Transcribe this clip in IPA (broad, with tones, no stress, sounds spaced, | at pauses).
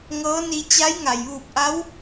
ŋ ɤː˧˥ n i˧ t͡ɕ a˧˥ j ŋ a˩ j ʋ uː˧˩ p̚ ʔ a˧˥ w